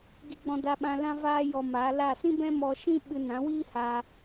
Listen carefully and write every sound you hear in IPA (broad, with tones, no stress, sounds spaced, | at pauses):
ɡ i˧ ɡ͡b ɔ̃˧ d a˧ ɓ ã˧ l ã˦ v aː˦ j ɔ˧ m a˨˦ l a˦˨ s ĩ˦ b ɛ̃˦ m ɔ˧ ʃ ĩ˦ ɓ ɨ˧ n ã˨˦ w iː˦ h a˧